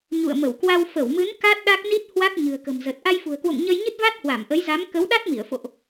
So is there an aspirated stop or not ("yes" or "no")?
no